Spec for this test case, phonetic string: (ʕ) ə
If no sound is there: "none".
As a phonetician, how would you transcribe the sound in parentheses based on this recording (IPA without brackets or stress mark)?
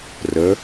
r